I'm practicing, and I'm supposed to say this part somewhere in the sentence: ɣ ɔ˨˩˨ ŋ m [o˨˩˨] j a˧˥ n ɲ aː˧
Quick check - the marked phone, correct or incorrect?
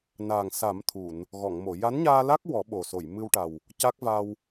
correct